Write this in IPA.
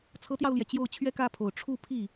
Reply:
t͡sʰɤ˧˥t̪jɑ˧ʊ̯ljɛ˩ t͡ɕjo˥˩ʊ̯t͡ɕʰɥɛ˥kä˥˩pʰo˨˩ʊ̯ ʈ͡ʂʰu˥˧pʰi˥˩

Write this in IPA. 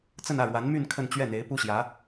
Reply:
t͡sə˥˧nä˥˩ɻwa˧˥nmy˥˧n kʰə˥˧nt͡ɕɥɛ˥˩n̪e˧˥ɪ̯ pu˥ɕjä˧˥

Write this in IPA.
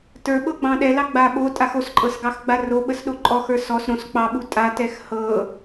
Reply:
tə˞ɓɤɡ͡bɑ̃ ɗɛlɑ ɡ͡baɓo tʼaxosǃʼɤsɡɑx ɡ͡baroɓəsɗo ǃʼɔxə˞ sɔs ɾõs k͡pɑɓu tʼatɛx hɤ

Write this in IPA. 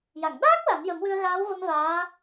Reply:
ja˨˩˨ŋ ɗaː˦˥k̚ la˨˩˦njə˨˩˦mwɨ˧ə̯ ɣaː˧˥wvə˧m vaː˧˥

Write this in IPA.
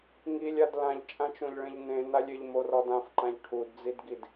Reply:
ŋilʲad lãʎt͡ʃʼãt͡ʃõʎɭẽʎ nẽnalʲ ɪʎmorɔd ãfǃãʎ ʈʰudd͡zidɡid

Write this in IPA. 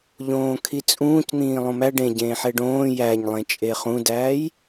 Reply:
ʎõːkʰit͡sʼũːcn̪ĩː lˠõmæ ɖẽɟẽːħe ɖõː jæɲlˠẽ t͡ʃʼeχũdæːj

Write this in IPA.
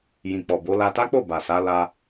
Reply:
jĩ˨k͡pɔ˨bo˨˦ la˧ta˦k͡po˦˨ ba˨sa˨˦ la˧

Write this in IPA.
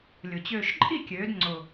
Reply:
lʲʊ˩t͡ɕøː˧˩ʃǃʼi˥˩kʲøː˩˧d ŋ͡ǀʊ˩

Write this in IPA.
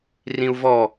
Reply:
rĩu̯vɔ

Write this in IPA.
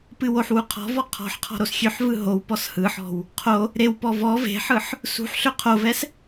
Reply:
pɨwoħwu qʰɔ̤v ɔqʰɔ̤ħqʰɔ̤ ɾosxʲøħvɯ ɦow pɔshɯħɔ̤w | qʰo | ɾewpɔ vɔ ve̤ħɯħ | sṳħ ɬøqʰovɛs

